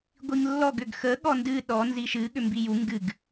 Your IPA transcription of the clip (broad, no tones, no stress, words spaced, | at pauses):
ɡʷiŋlːɔɡ ʏɡxə ɠɔndɨ ɗɔ nziʃɨ ɠʏmbiju ŋɡɨɡ